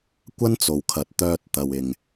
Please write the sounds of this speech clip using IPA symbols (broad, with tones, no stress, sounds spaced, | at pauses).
kʷ ɐ˥ n t͡s o˨ w kʰ ɐ˨˥ t̚ t̪ œː˧ t̚ t̪ ɐ˨ w ɪ˨ ŋ